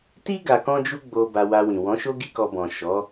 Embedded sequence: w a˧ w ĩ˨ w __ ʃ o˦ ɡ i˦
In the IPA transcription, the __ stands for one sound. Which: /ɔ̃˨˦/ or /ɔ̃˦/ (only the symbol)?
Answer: ɔ̃˨˦